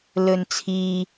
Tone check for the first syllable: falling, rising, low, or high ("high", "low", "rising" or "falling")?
low